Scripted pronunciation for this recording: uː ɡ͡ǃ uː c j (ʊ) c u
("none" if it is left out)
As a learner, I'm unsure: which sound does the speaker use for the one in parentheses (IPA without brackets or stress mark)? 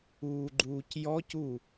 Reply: ɔ